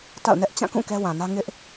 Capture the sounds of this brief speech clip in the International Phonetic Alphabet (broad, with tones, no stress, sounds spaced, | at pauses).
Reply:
t a̰˦˨ ʊ̯ n ɛ˦ ʔ t͡ɕ ã˦˨ k ũ˦˨ k ɛ˦ w ã˨ n ä˦ ŋ ɪ˦ ʔ